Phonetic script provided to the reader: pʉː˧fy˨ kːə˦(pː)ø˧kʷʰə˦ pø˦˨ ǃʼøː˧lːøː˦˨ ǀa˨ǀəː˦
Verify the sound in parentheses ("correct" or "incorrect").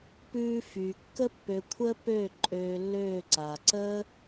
correct